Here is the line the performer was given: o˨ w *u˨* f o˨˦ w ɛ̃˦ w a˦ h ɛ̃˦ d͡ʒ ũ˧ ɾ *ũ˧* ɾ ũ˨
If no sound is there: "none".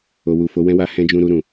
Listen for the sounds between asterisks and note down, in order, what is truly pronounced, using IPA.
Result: u˨, u˧

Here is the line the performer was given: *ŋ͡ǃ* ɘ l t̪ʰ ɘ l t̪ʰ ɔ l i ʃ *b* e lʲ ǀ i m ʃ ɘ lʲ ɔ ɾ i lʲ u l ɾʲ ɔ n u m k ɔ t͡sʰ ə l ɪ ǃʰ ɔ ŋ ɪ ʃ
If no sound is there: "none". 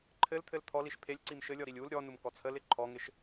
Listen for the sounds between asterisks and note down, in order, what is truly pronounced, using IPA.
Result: ǃʰ, pʰ

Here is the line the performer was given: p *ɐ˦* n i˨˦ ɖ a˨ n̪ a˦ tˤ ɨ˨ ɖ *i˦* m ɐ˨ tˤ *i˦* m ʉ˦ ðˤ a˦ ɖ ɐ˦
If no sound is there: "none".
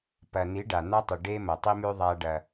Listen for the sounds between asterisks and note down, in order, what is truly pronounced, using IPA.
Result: ɐ˨, e˦, i˦

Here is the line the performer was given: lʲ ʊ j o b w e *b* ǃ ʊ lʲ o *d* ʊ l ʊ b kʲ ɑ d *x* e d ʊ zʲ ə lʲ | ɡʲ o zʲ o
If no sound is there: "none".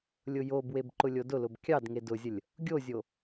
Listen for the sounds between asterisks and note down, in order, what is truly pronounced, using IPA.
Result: b, d, ŋ

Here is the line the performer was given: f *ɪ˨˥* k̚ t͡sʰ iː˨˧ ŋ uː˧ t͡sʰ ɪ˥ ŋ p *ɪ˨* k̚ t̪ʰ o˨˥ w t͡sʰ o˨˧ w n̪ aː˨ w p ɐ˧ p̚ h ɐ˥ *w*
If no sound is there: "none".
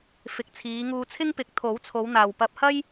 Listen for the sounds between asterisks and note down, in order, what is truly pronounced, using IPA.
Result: ɪ˨˥, ɪ˨˥, j

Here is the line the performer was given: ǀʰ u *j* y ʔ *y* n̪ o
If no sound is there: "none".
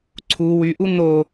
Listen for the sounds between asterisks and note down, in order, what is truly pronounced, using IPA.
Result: w, u

